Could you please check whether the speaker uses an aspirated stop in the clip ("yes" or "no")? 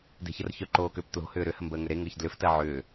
no